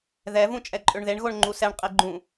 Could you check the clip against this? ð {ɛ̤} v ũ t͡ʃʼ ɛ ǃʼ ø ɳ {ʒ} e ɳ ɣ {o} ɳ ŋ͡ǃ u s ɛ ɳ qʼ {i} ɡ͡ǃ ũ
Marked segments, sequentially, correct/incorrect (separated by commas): incorrect, incorrect, correct, incorrect